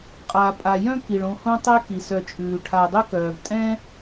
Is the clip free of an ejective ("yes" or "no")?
no